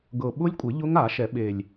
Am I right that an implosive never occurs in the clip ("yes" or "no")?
no